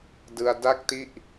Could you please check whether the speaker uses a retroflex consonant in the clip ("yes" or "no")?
no